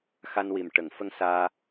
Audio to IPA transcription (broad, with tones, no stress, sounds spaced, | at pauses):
x a˧ n w i˨˩ m ʈ ə˨˩˨ ŋ f ə˧ ŋ s aː˧